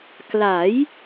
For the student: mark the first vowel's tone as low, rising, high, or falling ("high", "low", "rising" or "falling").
rising